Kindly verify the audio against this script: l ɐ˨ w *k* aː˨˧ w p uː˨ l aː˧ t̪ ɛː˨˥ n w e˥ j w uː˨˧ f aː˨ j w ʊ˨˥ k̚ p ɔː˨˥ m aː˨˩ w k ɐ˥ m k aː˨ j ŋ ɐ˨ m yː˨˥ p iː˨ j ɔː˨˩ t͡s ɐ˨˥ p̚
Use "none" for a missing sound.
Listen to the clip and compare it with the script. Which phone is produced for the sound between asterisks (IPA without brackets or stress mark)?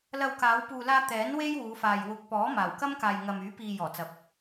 k